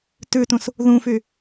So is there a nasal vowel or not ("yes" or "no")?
yes